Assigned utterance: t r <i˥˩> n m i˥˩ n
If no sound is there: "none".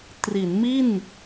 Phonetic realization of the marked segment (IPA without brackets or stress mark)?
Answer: i˩˦